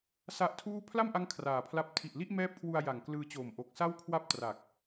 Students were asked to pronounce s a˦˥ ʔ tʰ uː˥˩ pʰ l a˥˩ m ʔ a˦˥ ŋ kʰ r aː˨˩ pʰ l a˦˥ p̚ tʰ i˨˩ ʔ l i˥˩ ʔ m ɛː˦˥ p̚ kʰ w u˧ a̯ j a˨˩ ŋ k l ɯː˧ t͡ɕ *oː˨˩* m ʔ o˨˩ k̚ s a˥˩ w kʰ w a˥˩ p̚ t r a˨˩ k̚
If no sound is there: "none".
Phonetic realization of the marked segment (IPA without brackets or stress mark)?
oː˨˩